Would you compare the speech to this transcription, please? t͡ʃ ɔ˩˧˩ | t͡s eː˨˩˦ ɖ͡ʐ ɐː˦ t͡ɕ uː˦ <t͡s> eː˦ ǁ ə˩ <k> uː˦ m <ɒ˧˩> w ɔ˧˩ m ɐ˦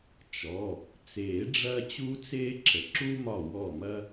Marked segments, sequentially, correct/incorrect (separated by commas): correct, incorrect, correct